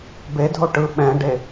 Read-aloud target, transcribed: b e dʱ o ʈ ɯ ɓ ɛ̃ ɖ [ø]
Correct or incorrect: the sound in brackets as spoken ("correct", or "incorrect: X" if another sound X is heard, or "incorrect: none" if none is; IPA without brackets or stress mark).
incorrect: e